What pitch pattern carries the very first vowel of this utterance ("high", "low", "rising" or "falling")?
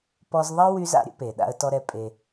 high